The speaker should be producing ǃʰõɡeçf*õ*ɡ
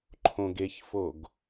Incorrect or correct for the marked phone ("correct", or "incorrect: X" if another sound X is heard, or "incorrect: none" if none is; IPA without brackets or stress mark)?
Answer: incorrect: o